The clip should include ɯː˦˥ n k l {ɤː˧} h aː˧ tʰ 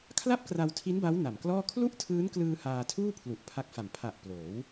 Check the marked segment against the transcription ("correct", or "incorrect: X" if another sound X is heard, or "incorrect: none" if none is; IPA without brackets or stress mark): incorrect: ɯː˧